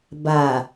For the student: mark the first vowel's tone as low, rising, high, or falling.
low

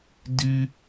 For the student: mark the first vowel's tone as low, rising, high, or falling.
high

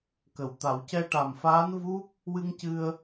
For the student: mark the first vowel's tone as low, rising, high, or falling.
low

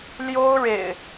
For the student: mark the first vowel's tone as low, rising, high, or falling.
high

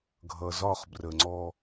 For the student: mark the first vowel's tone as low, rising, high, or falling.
low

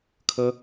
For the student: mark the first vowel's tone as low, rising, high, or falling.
high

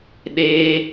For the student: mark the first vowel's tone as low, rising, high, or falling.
high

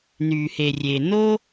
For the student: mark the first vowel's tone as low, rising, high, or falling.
low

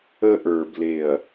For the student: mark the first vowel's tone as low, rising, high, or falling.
high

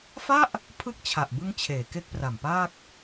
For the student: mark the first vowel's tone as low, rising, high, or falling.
falling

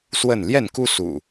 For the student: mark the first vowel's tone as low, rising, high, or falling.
falling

